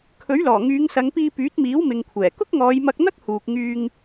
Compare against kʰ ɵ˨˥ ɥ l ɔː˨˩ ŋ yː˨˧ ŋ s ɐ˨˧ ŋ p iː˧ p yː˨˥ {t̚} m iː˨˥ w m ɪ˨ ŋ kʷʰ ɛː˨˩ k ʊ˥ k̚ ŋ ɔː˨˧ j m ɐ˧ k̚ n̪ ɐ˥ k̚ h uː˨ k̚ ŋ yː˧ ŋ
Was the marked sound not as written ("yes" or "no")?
no